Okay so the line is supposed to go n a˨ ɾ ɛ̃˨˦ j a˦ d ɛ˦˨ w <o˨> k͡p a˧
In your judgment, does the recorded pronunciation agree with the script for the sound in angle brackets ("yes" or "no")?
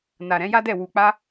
no